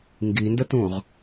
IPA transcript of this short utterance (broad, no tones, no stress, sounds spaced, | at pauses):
ŋ ɡ i n d ə t ũ ʁ